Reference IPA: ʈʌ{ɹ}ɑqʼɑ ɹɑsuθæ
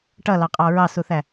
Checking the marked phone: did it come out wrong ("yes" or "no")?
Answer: yes